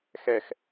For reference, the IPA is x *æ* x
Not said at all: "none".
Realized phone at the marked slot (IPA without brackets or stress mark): ɛ